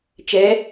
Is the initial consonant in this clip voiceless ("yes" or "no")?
yes